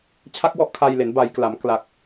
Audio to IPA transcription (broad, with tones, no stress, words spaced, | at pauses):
t͡ɕʰa˦˥k̚wɔ˦˥ʔ kʰa˧jle˩˦n ba˩˦j kla˩˦m kla˨˩k̚